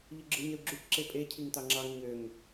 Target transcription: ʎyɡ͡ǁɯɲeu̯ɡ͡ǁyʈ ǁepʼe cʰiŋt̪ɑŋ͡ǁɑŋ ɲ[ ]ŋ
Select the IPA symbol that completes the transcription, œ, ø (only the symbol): ø